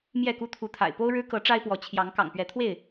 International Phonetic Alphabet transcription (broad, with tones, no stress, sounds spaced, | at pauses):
m j ɛ˥˨ k u˦ t̪ʰ u˨˦ t̪ʰ a̰˨˩ ɪ̯ p o˦ ʊ̯ ɻ ɻ̩˦ k ɤ˨˦ ʈ͡ʂ a˦ ɪ̯ p w ɔ˨˦ t͡ɕʰ j ɑ˨˦ ŋ k ɑ̰˨˩ ŋ p ɥ ɛ˨˦ t̪ʰ w e˥˨ ɪ̯